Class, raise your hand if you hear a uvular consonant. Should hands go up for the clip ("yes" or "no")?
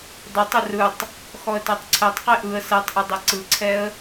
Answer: yes